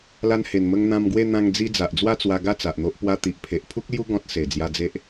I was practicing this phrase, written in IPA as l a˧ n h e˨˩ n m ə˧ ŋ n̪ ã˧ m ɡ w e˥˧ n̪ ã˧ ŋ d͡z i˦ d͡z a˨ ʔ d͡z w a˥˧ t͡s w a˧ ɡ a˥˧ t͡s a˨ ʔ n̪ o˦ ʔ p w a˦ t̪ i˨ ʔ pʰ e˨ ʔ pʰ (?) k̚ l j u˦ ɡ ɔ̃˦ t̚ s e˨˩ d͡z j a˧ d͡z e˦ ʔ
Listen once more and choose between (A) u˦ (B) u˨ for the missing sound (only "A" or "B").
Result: A